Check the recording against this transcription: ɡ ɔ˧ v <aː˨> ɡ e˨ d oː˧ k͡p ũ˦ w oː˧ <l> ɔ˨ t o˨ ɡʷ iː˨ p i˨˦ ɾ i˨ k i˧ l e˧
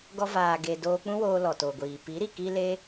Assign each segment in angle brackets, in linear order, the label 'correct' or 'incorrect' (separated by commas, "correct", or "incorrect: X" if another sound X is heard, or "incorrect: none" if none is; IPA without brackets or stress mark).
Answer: correct, correct